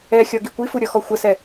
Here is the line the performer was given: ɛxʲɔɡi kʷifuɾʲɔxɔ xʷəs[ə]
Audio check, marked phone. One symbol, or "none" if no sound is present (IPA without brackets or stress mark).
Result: ɛ